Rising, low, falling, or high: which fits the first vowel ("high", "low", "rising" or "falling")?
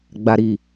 low